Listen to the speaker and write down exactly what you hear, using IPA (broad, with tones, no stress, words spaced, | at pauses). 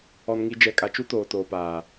ɔ˨nŋi˨ d͡ʒɛ˨kʼa˨t͡ʃu˦ toː˨toː˨paː˨